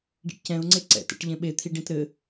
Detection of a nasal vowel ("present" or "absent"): present